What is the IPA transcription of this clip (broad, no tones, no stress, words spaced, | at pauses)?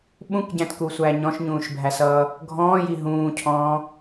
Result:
ɓũkɟæ̃tkusʷæ ɲɔ̃ʃɲũːʃbʱæsʌː | ɡʱɔ̃ːji ɦũːcʰɔ̃ː